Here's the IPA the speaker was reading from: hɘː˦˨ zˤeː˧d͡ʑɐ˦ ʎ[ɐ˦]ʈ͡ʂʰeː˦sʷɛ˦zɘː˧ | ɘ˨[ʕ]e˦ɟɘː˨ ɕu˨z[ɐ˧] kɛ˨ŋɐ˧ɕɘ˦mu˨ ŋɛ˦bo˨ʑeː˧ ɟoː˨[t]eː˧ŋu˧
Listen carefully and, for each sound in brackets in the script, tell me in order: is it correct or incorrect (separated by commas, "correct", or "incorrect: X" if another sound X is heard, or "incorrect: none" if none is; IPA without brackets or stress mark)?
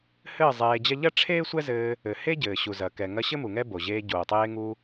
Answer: correct, incorrect: h, incorrect: ɐ˨, incorrect: tˤ